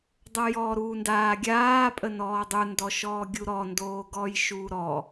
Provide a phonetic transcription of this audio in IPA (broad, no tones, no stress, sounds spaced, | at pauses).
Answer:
dˤ o j ɔː ɾ uː n d aː ɡʲ aː pʼ ə n ɔː dˤ u n d ɔ ʃ ɔː ɡʲ u ɾ ɔ n d oː ɡ ɔː j ʃ uː ɾ ɔ